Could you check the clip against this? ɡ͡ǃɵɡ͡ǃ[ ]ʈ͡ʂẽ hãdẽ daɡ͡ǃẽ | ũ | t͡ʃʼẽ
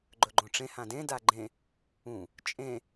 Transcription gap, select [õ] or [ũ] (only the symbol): õ